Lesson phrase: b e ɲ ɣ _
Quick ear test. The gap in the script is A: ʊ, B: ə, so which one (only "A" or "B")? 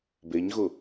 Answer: A